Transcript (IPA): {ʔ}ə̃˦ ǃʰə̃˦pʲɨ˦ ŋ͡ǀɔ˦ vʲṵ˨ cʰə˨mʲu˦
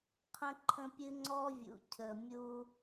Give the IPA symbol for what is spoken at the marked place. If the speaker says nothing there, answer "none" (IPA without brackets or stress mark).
qʰ